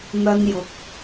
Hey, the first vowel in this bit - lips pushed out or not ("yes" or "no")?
no